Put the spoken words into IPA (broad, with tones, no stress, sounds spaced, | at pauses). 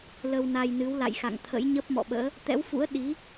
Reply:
l ə˧ w n a˧ j n ɨ˨˦ w l a̰˧˨ j x a̰˧˨ ŋ t̪ʰ ə̰˧˥ j ɲ ə˦˥ p̚ m ɔ̰˧˨ ɓ ə̰ː˧˥ | t̪ ɛ̰˧˥ w f ṵ˧˥ ə̯ ɗ i˨˦